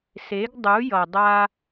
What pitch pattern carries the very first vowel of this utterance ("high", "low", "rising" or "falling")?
rising